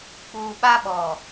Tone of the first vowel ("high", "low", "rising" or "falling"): low